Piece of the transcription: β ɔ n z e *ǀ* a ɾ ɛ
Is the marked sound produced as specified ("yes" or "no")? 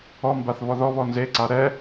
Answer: yes